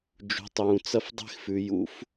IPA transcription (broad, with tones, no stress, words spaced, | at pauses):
d͡ʒṳ˩˧tˤjũ˩ t͡sɐ˥fdˤe̤˥xfʉ˩˧ jṵ˧˥f